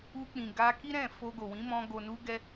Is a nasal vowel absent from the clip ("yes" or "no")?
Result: no